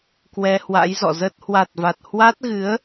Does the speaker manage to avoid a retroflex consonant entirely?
yes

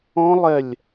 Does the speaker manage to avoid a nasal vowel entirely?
no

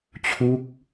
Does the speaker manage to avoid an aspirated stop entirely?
no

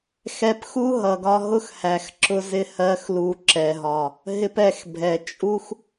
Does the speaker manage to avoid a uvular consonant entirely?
yes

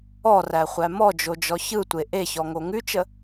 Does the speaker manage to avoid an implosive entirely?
yes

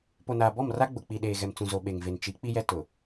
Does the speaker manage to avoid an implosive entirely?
no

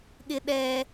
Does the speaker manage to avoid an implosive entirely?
no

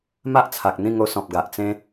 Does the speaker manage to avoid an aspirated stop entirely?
no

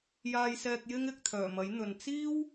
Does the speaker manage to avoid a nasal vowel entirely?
yes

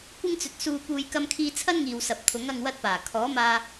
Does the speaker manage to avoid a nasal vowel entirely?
yes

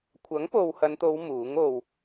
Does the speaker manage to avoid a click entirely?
yes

